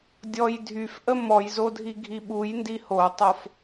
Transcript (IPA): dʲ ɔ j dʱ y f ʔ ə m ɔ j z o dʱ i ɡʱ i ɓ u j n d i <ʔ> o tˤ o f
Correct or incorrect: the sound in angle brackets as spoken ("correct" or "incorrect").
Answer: incorrect